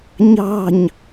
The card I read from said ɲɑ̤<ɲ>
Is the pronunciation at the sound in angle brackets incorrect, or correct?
correct